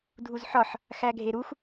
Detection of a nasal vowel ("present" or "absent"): absent